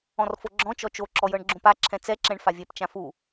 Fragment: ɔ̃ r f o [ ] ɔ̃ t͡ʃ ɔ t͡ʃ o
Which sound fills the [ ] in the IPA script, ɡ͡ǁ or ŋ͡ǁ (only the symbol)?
ɡ͡ǁ